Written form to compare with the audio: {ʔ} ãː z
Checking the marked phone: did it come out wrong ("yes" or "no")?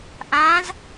no